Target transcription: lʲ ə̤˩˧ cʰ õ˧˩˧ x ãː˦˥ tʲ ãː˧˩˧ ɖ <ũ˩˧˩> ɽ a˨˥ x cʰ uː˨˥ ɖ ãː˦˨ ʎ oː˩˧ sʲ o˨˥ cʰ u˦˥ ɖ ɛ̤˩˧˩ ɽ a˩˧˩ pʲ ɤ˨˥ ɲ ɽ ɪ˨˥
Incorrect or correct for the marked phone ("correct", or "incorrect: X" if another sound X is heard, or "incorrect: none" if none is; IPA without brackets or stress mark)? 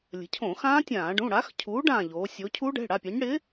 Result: correct